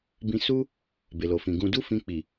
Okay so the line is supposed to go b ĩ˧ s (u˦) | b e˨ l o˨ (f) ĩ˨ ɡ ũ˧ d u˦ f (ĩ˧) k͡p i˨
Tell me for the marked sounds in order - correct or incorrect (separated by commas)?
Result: correct, correct, correct